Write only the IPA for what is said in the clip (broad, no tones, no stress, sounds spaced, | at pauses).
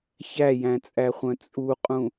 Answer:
ç æ j æ̃ t͡sʼ æ χʷ œ̃ t͡sʼ u qʼ ũ